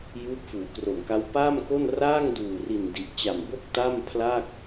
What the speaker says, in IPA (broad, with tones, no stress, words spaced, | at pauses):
juː˦˥p̚fuː˩˦kro˨˩mka˦˥w paː˥˩mko˥˩n raː˥˩ŋduː˨˩ri˨˩n di˨˩ʔt͡ɕa˨˩mbo˥˩k̚ ta˥˩mpʰla˥˩k̚